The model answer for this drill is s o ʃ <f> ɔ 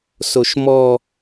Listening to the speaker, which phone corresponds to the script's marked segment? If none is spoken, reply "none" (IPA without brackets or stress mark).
m